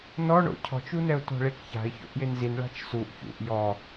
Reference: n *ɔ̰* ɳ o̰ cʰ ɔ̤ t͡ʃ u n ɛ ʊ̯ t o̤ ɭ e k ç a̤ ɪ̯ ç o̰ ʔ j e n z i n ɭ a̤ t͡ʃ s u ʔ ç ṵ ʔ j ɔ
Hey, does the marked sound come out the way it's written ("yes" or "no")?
no